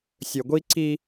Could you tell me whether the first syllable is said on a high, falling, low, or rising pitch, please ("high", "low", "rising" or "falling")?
low